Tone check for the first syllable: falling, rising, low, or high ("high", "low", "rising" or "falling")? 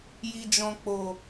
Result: low